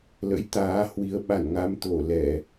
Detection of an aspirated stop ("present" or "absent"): absent